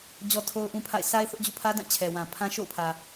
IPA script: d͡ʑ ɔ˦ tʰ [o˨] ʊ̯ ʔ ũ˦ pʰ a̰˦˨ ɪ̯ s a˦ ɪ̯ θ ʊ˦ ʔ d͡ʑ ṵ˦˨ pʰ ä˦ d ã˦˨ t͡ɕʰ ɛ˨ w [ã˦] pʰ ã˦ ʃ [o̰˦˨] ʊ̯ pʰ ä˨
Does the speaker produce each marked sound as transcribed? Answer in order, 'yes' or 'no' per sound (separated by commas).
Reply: no, no, yes